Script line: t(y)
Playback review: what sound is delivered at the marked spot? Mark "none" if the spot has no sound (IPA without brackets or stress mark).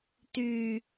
y